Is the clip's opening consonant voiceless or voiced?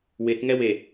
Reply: voiced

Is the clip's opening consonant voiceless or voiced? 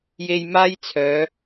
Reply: voiced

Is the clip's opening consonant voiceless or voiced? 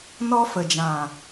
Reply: voiced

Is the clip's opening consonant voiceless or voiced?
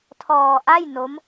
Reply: voiceless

